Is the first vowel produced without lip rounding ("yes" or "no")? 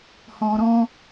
no